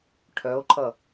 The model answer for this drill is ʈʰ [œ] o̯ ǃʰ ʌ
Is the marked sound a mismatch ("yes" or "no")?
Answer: no